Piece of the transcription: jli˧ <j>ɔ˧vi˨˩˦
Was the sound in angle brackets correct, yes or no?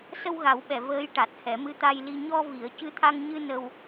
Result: no